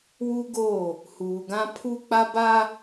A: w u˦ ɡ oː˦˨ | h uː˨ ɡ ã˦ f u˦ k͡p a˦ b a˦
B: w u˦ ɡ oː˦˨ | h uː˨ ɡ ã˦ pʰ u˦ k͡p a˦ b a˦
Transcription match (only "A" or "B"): B